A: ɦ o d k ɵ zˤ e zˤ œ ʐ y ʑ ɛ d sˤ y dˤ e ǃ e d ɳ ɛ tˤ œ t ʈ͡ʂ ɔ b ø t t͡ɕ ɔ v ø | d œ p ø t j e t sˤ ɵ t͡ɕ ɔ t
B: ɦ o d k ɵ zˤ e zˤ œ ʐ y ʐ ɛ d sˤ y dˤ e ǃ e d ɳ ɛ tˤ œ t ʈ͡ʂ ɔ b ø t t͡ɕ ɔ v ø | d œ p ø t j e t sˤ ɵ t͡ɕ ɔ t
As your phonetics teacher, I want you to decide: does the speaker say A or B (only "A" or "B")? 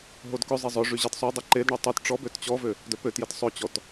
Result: A